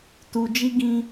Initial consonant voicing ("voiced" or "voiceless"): voiceless